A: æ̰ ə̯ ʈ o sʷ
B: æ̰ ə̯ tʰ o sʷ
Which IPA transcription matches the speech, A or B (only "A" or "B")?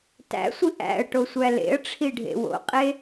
A